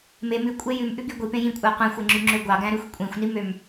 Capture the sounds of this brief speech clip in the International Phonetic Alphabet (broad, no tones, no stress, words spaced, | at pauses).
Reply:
me mʉkʷʼe jʉmʔʉɡy ɡʷipẽ jĩkʷʼæ qʷẽxʷeŋ͡ǁyŋ͡ǁø ɡʷɑɡæ̃ɾʉxʷ kʷʼĩxʷnimøm